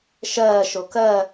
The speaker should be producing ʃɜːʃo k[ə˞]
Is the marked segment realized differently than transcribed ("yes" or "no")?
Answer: yes